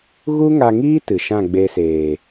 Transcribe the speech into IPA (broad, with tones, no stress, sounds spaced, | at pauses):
ɣ u˦ ŋ a˧ ŋ iː˦ t ɨ˨ ʃ ã˦˨ ɡ͡b e˧ s eː˨